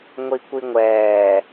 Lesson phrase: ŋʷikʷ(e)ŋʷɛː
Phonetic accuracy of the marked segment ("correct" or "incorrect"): incorrect